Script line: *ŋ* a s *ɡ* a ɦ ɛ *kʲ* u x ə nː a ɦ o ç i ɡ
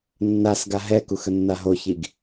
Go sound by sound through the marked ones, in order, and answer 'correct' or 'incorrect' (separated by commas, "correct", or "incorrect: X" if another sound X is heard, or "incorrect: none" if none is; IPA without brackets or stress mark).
incorrect: nː, correct, incorrect: k